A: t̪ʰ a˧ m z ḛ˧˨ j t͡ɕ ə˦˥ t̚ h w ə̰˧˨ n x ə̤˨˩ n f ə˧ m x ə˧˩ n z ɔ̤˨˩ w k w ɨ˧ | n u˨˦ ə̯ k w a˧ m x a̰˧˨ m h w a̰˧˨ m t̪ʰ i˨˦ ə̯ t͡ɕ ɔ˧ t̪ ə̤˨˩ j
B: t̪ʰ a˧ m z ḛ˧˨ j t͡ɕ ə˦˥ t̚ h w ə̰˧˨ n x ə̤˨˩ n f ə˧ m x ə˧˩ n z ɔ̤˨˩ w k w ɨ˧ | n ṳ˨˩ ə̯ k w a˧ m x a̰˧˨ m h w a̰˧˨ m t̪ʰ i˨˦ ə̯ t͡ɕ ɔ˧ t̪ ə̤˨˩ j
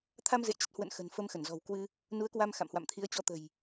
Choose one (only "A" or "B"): A